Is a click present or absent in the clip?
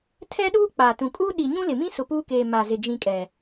absent